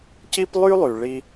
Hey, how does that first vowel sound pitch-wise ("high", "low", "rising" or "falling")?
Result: high